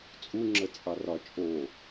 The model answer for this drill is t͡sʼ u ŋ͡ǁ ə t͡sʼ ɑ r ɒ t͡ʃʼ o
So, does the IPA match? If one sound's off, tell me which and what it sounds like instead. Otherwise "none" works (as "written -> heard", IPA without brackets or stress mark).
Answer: none